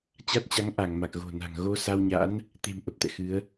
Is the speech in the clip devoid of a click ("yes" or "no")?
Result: yes